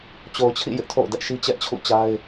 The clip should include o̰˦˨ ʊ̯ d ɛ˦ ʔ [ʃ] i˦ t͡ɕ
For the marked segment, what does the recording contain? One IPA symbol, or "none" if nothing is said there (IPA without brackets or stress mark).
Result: ʃ